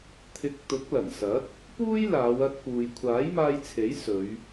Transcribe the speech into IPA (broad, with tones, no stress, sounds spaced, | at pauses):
t̪ʰ ɪ˨˥ k̚ t̪ ʊ˨˥ k̚ l ɐ˨˩ n s ɐ˨˥ t̚ | p uː˥ j l aː˨˧ w ɐ˧ t̚ p uː˨ j kʷʰ aː˨˥ j m aː˧ j t͡sʰ e˨˥ j s ɵ˨˧ ɥ